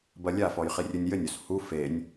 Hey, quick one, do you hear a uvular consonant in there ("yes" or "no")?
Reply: yes